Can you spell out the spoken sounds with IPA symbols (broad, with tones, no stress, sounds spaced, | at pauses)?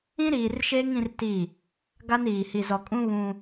ĩ˦ ɾ iː˨ r ʃ eː˦ ŋ ĩ˦ r t i˦˨ | ɡ a˦ n iː˨ h i˨ z ɔ˨ kʼ ũ˦ β ũ˦